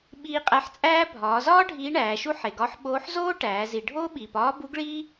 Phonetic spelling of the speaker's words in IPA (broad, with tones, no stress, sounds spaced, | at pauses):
ɓ iː˧ qʼ æ˧ ħ t͡sʼ æː˥ bʱ ɒː˩˧ z ɒː˥ ɖʱ iː˧˥ ɳ æː˩˧ ʃ u˥ ħ e˩ ɡ ɒ˧˥ ħ ɓ oː˧˥ ħ z oː˥ ʈ æː˩˧ z i˩ ɖʱ oː˥ ɓ iː˩ p ɒː˧˥ b u˧˥ ɡ ɭ iː˥